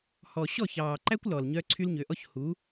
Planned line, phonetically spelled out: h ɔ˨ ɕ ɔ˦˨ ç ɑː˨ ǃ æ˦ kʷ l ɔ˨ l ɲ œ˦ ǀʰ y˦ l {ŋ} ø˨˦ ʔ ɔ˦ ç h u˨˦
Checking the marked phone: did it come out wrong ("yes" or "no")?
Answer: yes